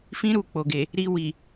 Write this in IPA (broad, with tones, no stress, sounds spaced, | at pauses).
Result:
f ĩ˦ ɾ u˧ k͡p o˨ ɡ e˨ | ɾ i˧ w i˨